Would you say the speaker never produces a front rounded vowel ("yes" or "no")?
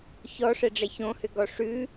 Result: no